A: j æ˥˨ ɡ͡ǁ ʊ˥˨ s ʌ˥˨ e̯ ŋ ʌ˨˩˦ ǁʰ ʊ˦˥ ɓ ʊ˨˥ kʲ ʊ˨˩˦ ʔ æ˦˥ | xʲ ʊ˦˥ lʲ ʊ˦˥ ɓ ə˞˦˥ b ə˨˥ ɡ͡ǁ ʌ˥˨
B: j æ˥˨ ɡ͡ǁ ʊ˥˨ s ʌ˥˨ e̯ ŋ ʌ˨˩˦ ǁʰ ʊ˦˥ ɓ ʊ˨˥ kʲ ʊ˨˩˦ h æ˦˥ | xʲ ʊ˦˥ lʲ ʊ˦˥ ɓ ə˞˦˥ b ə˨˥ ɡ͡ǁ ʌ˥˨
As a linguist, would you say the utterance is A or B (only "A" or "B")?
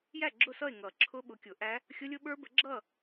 A